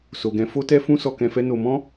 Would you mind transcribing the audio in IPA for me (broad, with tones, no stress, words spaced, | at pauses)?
so˨ɡɛ̃˨˦ fo˦tɛ˦fũ˦ sɔ˧kɛ̃˧fɛ˦ no˧ mɔ̃˦